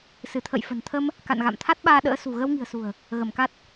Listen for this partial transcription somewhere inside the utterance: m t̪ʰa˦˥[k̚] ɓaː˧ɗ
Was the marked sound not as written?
yes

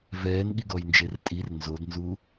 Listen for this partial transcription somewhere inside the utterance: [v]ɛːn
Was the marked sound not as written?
no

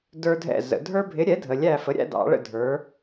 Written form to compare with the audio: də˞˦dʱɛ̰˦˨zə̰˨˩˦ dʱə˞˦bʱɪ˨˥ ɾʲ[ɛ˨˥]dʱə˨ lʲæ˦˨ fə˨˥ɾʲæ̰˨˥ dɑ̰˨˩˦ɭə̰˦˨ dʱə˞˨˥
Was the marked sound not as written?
no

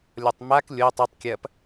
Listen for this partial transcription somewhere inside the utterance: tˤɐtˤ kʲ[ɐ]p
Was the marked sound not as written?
no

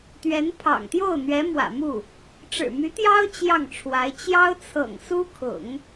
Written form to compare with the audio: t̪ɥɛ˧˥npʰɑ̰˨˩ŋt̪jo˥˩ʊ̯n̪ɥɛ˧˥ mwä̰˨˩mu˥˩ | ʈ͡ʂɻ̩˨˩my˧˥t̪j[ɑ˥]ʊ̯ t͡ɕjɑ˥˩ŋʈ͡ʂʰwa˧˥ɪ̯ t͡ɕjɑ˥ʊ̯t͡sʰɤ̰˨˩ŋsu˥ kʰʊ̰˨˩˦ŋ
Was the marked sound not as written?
no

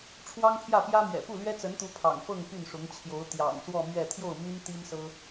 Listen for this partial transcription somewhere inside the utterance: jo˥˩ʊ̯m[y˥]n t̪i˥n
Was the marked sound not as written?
no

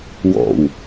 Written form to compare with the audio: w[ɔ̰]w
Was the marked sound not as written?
no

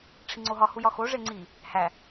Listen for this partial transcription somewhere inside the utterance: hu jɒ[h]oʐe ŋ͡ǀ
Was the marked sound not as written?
yes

